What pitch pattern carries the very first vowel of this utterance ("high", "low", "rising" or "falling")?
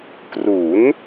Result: rising